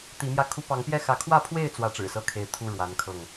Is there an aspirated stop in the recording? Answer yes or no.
yes